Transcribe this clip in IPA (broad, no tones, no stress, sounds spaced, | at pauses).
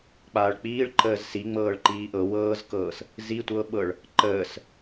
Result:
k͡p aː ɭ k͡p iː ɭ ǃ əː z s i ŋ͡m ɤː ɭ ǃ iː ʔ ɤ w ɤː z k ɤː s | z i tʷ ɤ ɓ ɤ ɭ | ǃ əː s